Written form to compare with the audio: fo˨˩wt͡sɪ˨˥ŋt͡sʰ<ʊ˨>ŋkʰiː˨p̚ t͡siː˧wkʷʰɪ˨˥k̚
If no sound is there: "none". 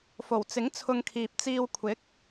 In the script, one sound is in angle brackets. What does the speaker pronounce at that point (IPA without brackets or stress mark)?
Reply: ʊ˧